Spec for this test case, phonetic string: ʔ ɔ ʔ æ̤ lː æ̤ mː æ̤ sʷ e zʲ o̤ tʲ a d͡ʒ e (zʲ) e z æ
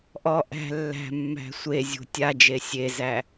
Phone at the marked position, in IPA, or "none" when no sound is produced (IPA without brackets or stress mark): sʲ